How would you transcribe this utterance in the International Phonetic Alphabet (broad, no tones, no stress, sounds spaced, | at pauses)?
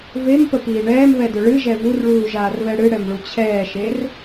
v e m p ə p iː ɳ ɛː m β ɛ d ʏ ɭ ɨ ʒ ɛ v u r ɭ uː ʒ aː r β ɛ ɽ ɨ ɽ ɛ m ɭ u t͡ɕʰ ɛː ʃ e r